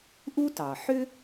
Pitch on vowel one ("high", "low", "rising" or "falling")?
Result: high